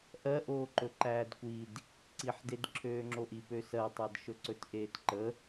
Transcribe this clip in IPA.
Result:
ʔ ɜ ʔ oː ǃ ɵ ǃ æː d kʷ i d | ǀ i ħ d e d ǁʰ øː ŋ͡ǁ o ʔ i p ø s ɜ tˤ æ d ʃ ɵ ǀ ɵ t ʔ eː t ǃ ə

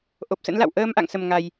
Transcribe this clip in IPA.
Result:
ʔ o˨˩ p̚ s ə̰˧˥ n l a̰˧˨ w ʔ əː˧ m ʔ a̰˧˨ ŋ s ə˨˩ m ŋ a˨˩ j

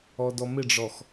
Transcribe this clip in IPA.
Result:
ɔ d ɔ m ɪ ɖ͡ʐ ɔ x

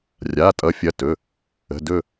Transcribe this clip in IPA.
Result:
rʲ a˩˧˩ tʼ ʌ˨˦ fʲ ɐ˩˧˩ t ɵ˩˧˩ | ə̤˩˧˩ d ɵ˦˨

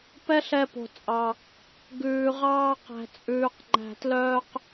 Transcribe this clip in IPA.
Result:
p ɛ˦ ɬ ɛ˧ p o̤˨ t͡sʼ ɑ˨ | ɡ ʉː˨ ʁ ɑː˧ q æ̤˨ t͡sʼ ʉː˨ q ŋ͡ǃ æ̤˨ t l œː˧ q

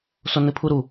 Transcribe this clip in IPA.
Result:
s o n ɨ pʰ u ɾ u

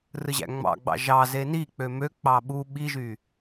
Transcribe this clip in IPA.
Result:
r ɯ ʑ æ̰ ŋ͡m ɑ̰ ɡ͡b ɑ̰ ʒ ɑ z e n i k͡p ø m ø k͡p ɑ ɓ u ɓ i ʒ y

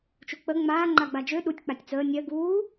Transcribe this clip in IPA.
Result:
t͡ʃ u k͡p ə ŋ͡m aː ŋ͡ǃ a ɡ͡b a d͡ʒ ø ɗ u tʲ k͡p a tʲ t͡s əː nʲ ɜ ɡ uː

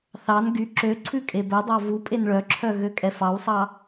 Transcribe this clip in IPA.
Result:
θ ɑ n ɡ y ǁ ø ǀʰ ʉ kʼ e b œ dˤ ɑ v u pʼ e n ɭ œ ǁʰ œ ɣ ø kʼ ɛ f ɑ w sˤ ɑ

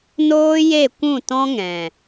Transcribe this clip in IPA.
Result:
n oː˦ j e˦˨ kʷ ũ˦˨ t ɔ̃˦ ŋ ɛ̃˨

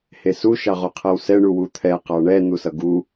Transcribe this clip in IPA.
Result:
h e s u ʃ ɑ ʁ o qʰ ɛ w s ɛ ɳ u w u t̪ʰ ɛ q ɑ ɳ ɛ n̪ u s ʌ ɡ u

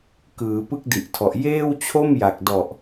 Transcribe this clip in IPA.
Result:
k ɯː˩˦ p ɯ˦˥ k̚ d i˨˩ ʔ tʰ ɔ˨˩ ʔ j eː˥˩ w t͡ɕʰ o˥˩ m j a˨˩ k̚ d ɔ˨˩ ʔ

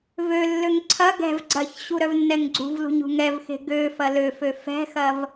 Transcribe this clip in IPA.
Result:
v ø lː ø ŋ ǀʰ ɐ ɡ ɛ̤ v ɡ͡ǀ ɐ ç ɕ u ɾ œ v nː ɛ ŋ ɡ͡ǀ ṳ v l ṳ ɲ ṳ ŋ ɛ v x e̤ ɡ ø f ɐ l ø f ø f ɛ̤ x ɐ v

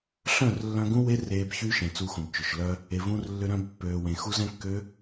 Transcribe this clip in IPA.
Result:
ɬ œ̃˦˨ r lː œ̃˧ ɡ ũ˦ w e˦ r eː˧ b ç y˦ ʃ ẽ˨ t͡s u˧ x ũ˨ b t͡ʃ ʏ˨ ʃ l œ˧ | e˨ v ũ˧ r lː ʏ˧ ɾ œ̃˧ b pː øː˨ w ẽ˨ x u˧ z ɛ̃˦ kː ø˦

